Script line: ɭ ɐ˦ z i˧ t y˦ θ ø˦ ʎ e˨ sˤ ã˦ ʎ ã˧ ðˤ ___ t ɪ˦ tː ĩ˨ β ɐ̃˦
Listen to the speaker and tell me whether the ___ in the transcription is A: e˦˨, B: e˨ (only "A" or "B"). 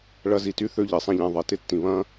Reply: B